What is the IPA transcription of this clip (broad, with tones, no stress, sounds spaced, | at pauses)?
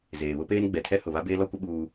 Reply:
z eː˨ β ʊ˦ p eː˦ n ɡ͡b ɛ˨ tʰ ɛ˦ h ʊ˨ β a˦ b eː˦ l ɔ˦ kʷ ɪ˦ ɓ uː˦